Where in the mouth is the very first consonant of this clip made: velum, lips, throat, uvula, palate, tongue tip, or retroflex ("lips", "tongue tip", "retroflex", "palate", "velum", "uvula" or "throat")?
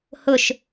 throat